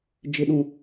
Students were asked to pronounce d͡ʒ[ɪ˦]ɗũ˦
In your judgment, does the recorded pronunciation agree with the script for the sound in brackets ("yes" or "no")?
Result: yes